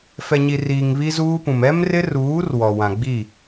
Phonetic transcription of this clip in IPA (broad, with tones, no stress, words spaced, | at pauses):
fɛ˨ɲi˨riː˨ŋ βi˦zuː˦pũ˨m ɛ˦mrɪ˦ruː˨˦r wɔ˨ wã˨ɡ͡bi˦˨